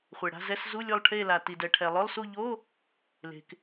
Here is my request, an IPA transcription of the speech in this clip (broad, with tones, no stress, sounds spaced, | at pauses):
χʷ e˩ ɽ a̤˧˥˧ z ɛ˧˥˧ s z u˧˥˧ lʲ ʊ˦˨ lˠ ʈʰ e˦˨ l a˩ t i˩ d ɛ˩ ʈʰ ɛ˩ lˠ ʊ˧˥˧ lˠ s u˦˨ ʎ o˧˥˧ | l e̤˩ k